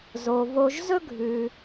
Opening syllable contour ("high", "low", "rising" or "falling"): low